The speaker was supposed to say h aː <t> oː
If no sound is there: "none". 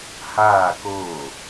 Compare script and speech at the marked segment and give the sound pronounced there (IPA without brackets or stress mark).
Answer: k